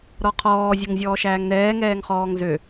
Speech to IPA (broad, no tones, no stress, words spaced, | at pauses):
ɾɔqʰɔː zʲə˞ŋzʲɔːʃæːŋnɛː ŋɛːŋχɔːŋzø